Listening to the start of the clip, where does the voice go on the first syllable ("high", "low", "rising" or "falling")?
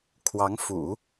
rising